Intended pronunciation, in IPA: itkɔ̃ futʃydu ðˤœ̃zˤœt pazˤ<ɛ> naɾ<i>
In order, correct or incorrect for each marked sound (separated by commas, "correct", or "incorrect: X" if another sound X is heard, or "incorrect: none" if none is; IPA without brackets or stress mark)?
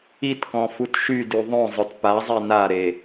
correct, incorrect: e